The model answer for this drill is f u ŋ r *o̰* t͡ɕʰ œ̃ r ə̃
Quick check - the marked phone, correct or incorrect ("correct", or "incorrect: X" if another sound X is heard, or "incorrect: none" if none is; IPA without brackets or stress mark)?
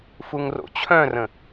correct